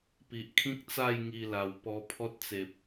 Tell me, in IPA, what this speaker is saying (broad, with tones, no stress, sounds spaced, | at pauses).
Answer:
p i˨ ʔ kʰ ĩ˦ k̚ t͡s a˥˧ j ŋ i˧ l a˨˩ w p ɔ˧ pʰ ɔ˦ t̚ t͡s e˨ p̚